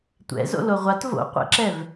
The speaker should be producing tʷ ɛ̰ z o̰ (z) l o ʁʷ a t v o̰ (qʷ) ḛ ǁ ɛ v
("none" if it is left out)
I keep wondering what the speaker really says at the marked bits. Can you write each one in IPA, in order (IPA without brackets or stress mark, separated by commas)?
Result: none, qʷ